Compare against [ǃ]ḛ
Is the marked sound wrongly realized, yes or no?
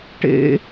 yes